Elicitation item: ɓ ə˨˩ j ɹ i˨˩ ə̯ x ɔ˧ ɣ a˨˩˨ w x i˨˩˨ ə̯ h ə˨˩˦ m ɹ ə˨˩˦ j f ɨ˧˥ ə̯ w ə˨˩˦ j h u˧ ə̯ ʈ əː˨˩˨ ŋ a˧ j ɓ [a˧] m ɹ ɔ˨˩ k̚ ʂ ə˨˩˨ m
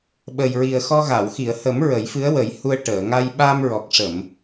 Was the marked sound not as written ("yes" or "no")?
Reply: no